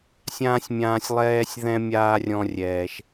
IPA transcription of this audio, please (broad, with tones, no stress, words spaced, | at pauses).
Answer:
sʲãː˥sʲmʲãː˦sʲ lˠɛː˥sʲðɛ̃˥ mʲaː˥rʲɔ̃˦rʲɛː˨ʃ